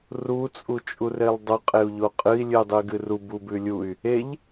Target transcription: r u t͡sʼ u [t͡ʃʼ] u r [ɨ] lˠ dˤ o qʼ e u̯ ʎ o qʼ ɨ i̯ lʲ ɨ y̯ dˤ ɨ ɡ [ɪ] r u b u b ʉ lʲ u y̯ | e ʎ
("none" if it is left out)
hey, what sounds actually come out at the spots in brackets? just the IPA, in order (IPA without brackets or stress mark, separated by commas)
t͡ʃʼ, e, ɨ